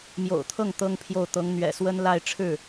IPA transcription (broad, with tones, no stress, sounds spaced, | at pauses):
m j o̰˨˩ ʊ̯ t̪ʰ ɤ˥˩ ŋ t̪ ɤ˥ ŋ pʰ j o˥˩ ʊ̯ t̪ ɤ˧˥ ŋ n̪ ɥ ɛ̰˨˩ s w ə˥ n l a˥˧ ɪ̯ ʈ͡ʂʰ ɻ̩˥˩